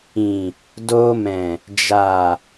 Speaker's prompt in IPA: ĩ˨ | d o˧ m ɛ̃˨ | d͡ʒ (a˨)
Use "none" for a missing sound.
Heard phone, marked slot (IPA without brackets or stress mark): a˨